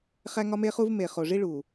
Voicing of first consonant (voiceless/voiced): voiceless